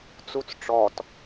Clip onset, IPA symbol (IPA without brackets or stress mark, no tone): t͡s